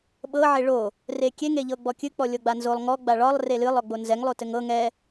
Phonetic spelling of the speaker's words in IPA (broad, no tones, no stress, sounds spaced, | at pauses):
ɓ ɤ ʕ e ɭ o | r e kʲ e ŋ e ʎ ɤ ɡ͡b ɔ kʲ ɨ k͡p ɔ lʲ ɤ ɡ͡b a n z o lˠ ŋ ɔ ɡ͡b a ɭ ɒ lˠ r e l ɨ lˠ ɔ ɡ͡b o n z ɛ ŋ lˠ o t ɘ ŋ ɤ ŋ ɛ